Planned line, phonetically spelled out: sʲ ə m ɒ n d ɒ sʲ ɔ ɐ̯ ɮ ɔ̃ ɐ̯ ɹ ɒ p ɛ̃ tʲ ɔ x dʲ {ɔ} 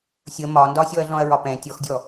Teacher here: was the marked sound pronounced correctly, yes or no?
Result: yes